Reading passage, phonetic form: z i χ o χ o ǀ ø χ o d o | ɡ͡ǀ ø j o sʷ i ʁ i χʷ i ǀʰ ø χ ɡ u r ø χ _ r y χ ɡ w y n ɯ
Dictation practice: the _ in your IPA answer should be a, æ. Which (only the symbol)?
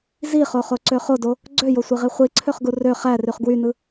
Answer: æ